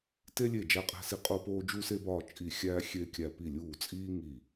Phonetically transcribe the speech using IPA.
t e˥ lʲ e˥˩ d͡ʒ æ˥˩ qʼ æ̤˥ s i˥˩ qʼ o˥ p oː˥ d͡ʒ u˥ s e˥ b ɒː˥˩ t͡ʃʼ i˥˩ xʲ æː˥ xʲ e˥ kʲ æ˥˩ p i˥˩ lʲ uː˥˩ t͡sʼ iː˥ ŋ i˥˩

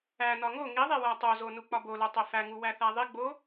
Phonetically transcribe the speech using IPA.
æ n ɒ ŋ o ŋ i ðˤ e w æ tˤ o z o n u k͡p ɒ b o l o tˤ e f æ ŋ u w æ θ æ ðˤ i ɡ͡b o

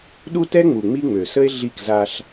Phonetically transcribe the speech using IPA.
ɗ u˦ t ɛ˦ ŋ͡m u˨ ŋ͡m i˦ ŋ͡m ø˨ s ə˦ e̯ ɮ i˦˨ k z a˦ ɬ

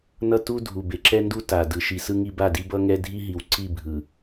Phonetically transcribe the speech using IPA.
n ʌ˦ t u˦ dʱ u˨ b e˨ ǁ ɛ˦ n d u˦ t a˨ d ɯ˨ ʃ i˨ s ɯ˦ ŋ i˦ b a˦˨ d i˦ b ʌ˦ ŋ ɛ˦ dʱ i˦ ɦ i˨ w ǀ i˦˨ bʱ ɯ˨

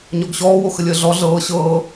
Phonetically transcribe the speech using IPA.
ɲ ɔ ɡ ɕ ɔː w o x ə lʲ əː ɮ ɔ ɮ ɤː ɕ ɤː

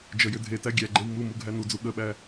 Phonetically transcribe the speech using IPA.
d͡ʒ ə j ʏ dʱ e t æ ɡʲ æ ɡ͡ǃ e w m u m u ɡʱ æ n u d͡z u ɠ ə ɓ æ

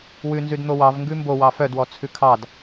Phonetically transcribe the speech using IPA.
w ʉ n z ʉ d n̪ o w ɑ v ŋ ɡ ʉ m b o w ɑ f œ d w ɔ t͡sʰ ʉ kʰ ɑ d

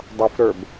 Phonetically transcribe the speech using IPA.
dˤ ʌ f ɾ ə˞ b

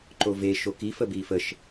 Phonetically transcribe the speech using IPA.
ǃ o v e ʃ o k i f ə b i f ə ʃ

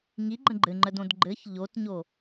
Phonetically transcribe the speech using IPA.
ŋ i ɡ͡ǃ ə̃ ɡ͡ǃ ɘ ŋ͡ǃ ə d õ d ɡ͡ǃ ɘ ç ʎ o t ɲ o

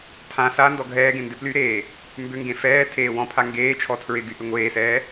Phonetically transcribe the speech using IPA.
tʰ ã s a n d ɔ ɡʱ ɛː ɡ ẽ n d ɪ p l y ɾ eː | m b ʏ ŋ ɡ ẽ f ɛː tʰ eː w ɔ̃ pʰ a ŋ ɡ eː t͡ʃʰ ɔ tʰ ɹ ɪ ɡ y ʔ ʏ ŋʷ eː s ɛː

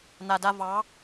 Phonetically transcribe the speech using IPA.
n̪ a˨ d a˧ v ɑː˨˦

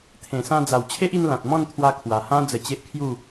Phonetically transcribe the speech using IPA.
t̪ʰ ẽ˨˩ s ã˧ d͡z a˨˩ w t͡ɕʰ e˦ ʔ i˧ n l ã˨ t̚ m ɔ̃˥˧ n t̪ʰ w a˧ kʰ w a˨˩ h ã˦ d͡z ə˧ t͡ɕ e˦ ʔ kʰ j u˥˧

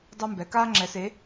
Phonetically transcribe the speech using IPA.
dˤ u˥ m b ɛ˨˥ k aː˥ ŋ͡ǁ ɛ˨˥ s e˨˥

